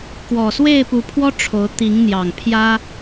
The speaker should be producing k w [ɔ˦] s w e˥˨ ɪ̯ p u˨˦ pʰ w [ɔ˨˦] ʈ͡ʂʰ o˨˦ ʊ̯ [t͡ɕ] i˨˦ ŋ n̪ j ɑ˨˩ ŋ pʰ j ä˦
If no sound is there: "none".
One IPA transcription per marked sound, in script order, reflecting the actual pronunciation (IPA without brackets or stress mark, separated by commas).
ɔ˨˩, ɔ˦, t̪